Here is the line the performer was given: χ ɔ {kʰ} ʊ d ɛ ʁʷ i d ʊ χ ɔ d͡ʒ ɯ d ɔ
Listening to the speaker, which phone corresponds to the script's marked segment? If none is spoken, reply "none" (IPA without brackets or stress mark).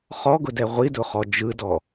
ɡ